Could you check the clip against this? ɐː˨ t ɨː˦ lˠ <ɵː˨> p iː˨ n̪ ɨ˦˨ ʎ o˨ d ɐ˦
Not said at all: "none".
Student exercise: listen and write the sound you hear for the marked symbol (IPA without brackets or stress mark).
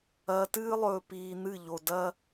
ɵː˨